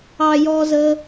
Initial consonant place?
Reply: palatal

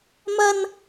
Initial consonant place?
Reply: labial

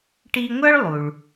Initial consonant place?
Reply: retroflex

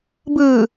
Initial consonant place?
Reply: labial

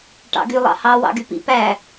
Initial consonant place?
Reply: retroflex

